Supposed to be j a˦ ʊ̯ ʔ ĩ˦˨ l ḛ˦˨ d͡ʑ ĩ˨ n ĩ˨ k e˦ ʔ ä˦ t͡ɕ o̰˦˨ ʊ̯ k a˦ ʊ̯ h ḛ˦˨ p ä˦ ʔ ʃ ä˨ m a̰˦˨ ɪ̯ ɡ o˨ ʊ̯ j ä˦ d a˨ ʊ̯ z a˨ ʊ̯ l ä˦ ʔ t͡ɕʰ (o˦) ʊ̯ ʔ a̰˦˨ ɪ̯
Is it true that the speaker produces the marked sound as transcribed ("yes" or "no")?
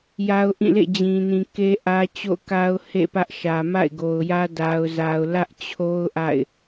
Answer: yes